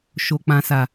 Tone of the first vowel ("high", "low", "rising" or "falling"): high